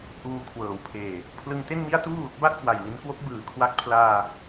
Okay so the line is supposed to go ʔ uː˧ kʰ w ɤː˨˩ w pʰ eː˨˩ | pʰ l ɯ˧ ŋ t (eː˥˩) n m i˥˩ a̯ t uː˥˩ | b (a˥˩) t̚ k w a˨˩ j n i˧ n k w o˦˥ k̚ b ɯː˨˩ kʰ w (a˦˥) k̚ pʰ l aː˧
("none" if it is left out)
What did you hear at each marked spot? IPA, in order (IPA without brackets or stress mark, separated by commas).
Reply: e˥˩, a˥˩, a˦˥